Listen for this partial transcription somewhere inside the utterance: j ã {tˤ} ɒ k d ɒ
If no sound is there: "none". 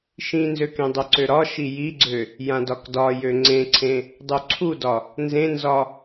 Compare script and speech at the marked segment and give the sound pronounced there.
d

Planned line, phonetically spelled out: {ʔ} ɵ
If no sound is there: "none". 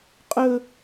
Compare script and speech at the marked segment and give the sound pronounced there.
qʼ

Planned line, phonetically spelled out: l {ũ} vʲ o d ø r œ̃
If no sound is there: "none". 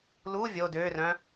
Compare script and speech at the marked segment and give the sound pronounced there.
u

